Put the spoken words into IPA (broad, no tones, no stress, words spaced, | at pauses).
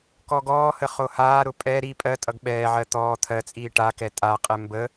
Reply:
kɔɡɔːhə χohaːɾʊ pʼɛ ɾi pʼɜtʼʌɡ ɓɛːʕɜ t̪ɔː t̪ʰɜt͡sʼiː ʈakɛ tʼaqʼɛ mbə